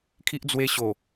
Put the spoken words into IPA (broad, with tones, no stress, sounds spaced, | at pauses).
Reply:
kʰ i˦ ʔ d͡z w e˧ ɕ o˨˩